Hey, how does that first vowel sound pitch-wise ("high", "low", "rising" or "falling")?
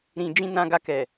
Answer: low